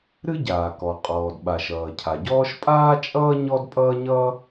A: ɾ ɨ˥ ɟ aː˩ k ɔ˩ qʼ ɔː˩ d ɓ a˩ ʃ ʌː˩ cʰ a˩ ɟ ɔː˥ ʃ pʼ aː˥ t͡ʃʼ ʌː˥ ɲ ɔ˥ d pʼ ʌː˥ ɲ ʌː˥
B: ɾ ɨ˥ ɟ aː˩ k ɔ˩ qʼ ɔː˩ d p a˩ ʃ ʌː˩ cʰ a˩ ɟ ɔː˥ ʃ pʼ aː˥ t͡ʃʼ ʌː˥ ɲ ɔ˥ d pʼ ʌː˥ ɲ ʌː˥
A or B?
A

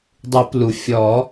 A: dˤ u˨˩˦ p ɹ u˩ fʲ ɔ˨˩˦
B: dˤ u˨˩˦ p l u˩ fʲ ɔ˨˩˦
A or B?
B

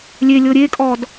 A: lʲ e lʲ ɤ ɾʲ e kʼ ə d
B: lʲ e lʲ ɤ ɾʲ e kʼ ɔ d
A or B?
B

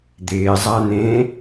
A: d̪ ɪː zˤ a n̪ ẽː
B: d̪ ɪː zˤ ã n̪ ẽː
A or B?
A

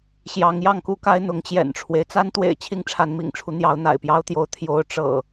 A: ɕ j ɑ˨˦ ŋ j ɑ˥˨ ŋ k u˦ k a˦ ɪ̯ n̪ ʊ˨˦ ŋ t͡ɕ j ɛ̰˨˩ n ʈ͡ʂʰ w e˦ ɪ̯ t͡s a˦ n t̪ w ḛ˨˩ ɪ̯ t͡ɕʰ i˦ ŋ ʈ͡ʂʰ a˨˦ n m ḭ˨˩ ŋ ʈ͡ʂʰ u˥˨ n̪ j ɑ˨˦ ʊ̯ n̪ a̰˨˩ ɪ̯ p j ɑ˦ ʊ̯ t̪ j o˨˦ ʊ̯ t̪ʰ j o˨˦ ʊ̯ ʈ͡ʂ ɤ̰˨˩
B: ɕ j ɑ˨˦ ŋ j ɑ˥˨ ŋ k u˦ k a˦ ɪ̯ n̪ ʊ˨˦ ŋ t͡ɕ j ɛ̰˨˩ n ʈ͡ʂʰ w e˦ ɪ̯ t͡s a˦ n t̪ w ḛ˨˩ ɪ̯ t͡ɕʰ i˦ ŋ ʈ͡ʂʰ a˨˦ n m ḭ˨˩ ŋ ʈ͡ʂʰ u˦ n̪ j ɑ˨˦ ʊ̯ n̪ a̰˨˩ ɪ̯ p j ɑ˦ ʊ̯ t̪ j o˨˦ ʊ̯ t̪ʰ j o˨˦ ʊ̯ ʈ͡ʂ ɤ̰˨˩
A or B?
B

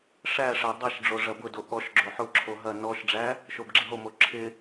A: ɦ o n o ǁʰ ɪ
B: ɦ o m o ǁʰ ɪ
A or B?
B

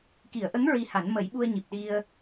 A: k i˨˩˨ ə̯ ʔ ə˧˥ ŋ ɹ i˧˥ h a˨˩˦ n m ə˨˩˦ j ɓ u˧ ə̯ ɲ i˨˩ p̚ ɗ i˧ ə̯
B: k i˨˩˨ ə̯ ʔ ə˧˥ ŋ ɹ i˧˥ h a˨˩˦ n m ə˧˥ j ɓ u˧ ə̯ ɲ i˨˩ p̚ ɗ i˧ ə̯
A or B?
A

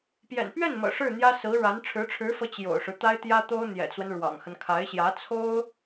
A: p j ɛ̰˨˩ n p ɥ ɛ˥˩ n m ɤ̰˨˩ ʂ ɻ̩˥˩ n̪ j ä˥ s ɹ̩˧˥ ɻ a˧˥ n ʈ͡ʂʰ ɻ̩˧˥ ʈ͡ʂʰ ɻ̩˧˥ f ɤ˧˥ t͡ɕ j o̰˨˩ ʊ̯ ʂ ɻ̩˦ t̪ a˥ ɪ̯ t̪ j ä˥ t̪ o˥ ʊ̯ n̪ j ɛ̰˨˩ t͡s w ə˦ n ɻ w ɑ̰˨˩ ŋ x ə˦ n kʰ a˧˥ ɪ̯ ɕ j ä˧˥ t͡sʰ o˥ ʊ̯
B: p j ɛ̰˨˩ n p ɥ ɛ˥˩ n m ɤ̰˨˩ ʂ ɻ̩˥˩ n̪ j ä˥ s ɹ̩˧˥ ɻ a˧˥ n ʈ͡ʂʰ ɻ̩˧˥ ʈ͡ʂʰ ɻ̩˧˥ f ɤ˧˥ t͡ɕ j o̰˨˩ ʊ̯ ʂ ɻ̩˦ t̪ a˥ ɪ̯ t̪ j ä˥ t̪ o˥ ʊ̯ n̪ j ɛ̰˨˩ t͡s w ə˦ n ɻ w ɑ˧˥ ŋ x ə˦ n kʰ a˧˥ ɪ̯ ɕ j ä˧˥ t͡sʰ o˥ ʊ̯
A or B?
A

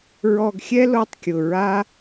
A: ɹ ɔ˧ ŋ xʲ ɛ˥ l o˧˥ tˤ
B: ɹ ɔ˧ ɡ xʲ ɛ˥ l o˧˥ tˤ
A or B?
B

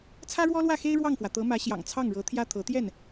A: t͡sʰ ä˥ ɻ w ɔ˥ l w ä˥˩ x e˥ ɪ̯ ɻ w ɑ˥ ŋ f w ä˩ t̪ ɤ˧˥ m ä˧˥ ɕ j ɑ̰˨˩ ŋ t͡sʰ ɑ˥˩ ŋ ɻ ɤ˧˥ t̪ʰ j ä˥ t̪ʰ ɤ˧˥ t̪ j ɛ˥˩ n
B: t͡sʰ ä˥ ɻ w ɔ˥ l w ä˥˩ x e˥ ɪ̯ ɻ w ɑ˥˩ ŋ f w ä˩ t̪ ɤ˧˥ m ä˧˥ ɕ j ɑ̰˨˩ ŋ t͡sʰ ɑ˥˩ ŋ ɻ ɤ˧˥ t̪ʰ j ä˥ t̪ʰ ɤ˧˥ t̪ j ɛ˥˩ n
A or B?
B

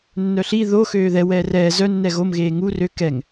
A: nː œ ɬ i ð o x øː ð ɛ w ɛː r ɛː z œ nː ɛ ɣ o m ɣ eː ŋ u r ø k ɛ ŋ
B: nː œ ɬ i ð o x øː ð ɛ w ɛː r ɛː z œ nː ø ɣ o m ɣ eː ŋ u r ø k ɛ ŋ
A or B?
A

